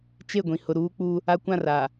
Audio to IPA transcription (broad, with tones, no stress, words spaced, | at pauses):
t͡ʃe˦˨ɡʷĩ˨ hʊ˨ɾuː˦k͡pu˦ | a˦kʷã˦˨ra˨